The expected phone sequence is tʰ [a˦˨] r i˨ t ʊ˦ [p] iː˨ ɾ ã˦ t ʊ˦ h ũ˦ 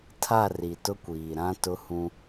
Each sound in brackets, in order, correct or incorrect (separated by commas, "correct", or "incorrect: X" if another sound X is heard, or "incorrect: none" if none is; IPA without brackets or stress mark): correct, incorrect: kʷ